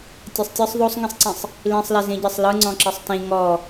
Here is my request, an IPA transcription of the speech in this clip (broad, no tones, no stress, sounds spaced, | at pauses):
tʲ e sˤ tʲ ɯ sˤ ðˤ o sˤ ŋ ĩ sˤ ǀ ĩ sˤ | l ĩ sˤ l e z ĩ ɟ e sˤ l ɯ ŋ͡ǀ ɔ̃ ǁ ɯ sˤ t ĩ ŋ ɔ